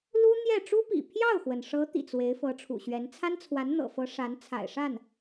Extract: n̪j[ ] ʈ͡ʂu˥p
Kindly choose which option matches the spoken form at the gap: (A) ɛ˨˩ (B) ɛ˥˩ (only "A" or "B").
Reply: B